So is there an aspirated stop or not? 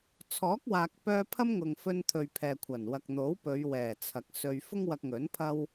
yes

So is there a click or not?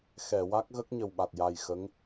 no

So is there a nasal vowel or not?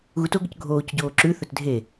no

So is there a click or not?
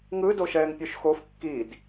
no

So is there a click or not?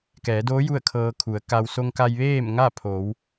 no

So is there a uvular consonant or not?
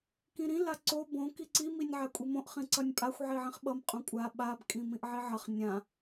yes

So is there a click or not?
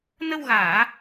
no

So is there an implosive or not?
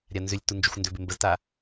no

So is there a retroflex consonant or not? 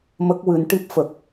yes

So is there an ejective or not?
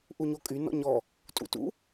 yes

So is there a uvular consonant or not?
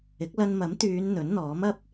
no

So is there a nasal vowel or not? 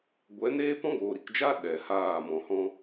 yes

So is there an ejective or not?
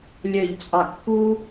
yes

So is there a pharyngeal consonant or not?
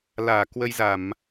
no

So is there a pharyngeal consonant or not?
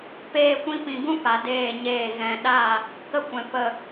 no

